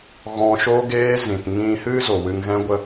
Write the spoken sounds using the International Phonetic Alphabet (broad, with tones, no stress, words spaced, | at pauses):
ɣɔ̃˧ʃo˦ɡeː˦zĩ˨t ŋĩ˧hɨ˦ zo˨wɨ˧ŋɣɛ̃˦ɡʷə˦